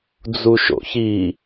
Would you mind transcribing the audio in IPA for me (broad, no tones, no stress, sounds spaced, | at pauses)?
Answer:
d͡z u ʃ o̰ ç i